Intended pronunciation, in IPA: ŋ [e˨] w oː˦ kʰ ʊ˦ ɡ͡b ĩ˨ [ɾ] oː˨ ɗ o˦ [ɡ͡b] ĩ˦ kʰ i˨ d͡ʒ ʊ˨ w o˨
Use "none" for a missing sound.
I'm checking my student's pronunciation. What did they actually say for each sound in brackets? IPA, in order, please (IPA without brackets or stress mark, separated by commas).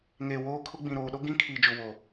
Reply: e˨, ɾ, ɡ